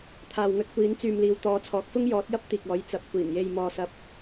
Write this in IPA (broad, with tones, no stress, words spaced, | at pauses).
t̪ʰaː˨wŋɵ˧t̚kʷiː˨˧n t͡syː˨mliː˨w t̪ɔː˨˧t͡sʰɔː˨˥k̚fʊ˥ŋ jɔː˨˥t̚jɐ˥p̚ t̪iː˨k̚ɔː˨˥jt͡sɐ˨˥p̚ kʷiː˨˩nje˨j mɔː˨sɐ˨p̚